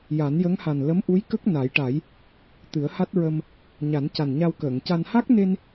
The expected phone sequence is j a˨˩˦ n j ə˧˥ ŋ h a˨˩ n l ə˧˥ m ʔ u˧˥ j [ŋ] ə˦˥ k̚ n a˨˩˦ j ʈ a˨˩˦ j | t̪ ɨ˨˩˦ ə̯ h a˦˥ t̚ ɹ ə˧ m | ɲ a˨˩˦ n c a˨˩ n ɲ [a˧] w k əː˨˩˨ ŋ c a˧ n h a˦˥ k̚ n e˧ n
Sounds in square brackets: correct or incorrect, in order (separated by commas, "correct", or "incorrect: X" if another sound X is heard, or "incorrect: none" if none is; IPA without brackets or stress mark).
incorrect: k, correct